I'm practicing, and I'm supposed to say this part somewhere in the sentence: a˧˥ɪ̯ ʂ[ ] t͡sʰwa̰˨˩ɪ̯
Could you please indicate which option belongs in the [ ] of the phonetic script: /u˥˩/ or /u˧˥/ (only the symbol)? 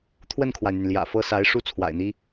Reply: u˥˩